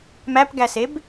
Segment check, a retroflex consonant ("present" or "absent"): absent